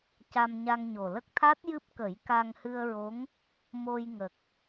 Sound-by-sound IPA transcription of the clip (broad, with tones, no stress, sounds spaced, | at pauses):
c a˧ m ɲ a˧ ŋ ɲ o˨˩ l ə˦˥ k̚ t̪ʰ a˦˥ t̚ j ɨ˦˥ p̚ k ə˨˩˦ j k a˧ ŋ h ɨ˧ ə̯ ɹ o˧˥ ŋ | m o˧ j ŋ ə˨˩ k̚